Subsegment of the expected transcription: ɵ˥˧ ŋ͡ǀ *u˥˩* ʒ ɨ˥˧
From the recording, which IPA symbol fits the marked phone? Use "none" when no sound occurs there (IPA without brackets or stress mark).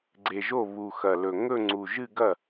u˨˩